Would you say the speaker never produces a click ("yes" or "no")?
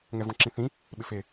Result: no